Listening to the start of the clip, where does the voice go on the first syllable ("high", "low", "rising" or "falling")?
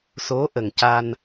rising